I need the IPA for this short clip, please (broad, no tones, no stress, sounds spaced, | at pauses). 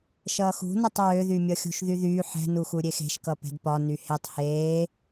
ʃ ʌː x ṳ n ʌ tˤ ɹ ø ð y mʲ ʌ xʲ ṳ ʃ ð y ð yː ħ ɛ̤ n u x u ɾʲ e x e̤ ʃ k ʌ p ɛ̤ d p ɒ n y h e tˤ h eː